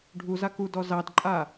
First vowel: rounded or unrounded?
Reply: rounded